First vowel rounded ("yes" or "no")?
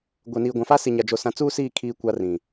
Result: no